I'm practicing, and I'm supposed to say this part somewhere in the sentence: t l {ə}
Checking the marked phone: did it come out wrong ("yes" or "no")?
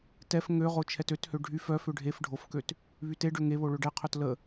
no